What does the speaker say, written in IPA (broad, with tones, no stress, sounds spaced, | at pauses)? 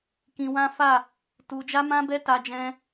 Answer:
k ĩ˧ w ã˦ f a˦˨ | t u˧ d͡ʒ a˦ m ã˦ b ɛ˦ t a˧ d͡ʒ ɛ̃˧